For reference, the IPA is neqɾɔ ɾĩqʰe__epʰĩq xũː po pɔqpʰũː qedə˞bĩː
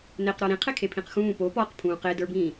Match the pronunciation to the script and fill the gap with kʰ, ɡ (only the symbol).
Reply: kʰ